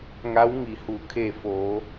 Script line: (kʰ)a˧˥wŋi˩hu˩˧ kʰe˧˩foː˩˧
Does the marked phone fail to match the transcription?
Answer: yes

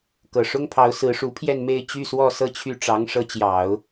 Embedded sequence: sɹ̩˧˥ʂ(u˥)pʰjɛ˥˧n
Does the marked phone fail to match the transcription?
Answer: yes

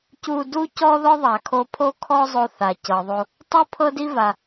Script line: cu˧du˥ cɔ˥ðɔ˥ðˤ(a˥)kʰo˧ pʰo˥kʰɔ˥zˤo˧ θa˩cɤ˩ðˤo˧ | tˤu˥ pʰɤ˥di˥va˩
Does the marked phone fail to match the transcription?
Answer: yes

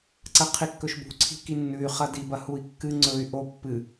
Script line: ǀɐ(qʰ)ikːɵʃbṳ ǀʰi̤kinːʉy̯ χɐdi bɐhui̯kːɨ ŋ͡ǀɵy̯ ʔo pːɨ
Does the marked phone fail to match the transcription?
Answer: no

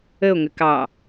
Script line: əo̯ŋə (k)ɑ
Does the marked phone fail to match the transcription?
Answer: no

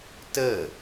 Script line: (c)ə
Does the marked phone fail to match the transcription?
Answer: yes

